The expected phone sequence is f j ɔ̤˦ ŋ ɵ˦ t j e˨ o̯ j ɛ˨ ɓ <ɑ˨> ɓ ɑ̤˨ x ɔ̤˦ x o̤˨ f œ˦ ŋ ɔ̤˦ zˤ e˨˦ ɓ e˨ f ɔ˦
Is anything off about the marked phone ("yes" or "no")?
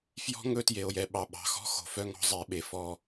no